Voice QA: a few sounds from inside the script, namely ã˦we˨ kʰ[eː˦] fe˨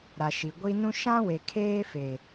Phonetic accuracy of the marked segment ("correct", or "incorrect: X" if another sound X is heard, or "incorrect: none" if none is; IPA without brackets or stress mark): correct